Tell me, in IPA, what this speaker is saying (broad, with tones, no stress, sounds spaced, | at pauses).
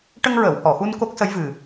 ʈ ə˧ ŋ ɹ əː˨˩˨ w h ɔ˨˩˨ x u˧ n k o˦˥ k̚ s ə˧˥ j v ɨ˨˩